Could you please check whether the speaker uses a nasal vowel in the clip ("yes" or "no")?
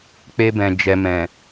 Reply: yes